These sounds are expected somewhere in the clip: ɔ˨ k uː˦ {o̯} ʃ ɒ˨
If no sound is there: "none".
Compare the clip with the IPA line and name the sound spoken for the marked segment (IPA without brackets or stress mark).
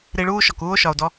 o̯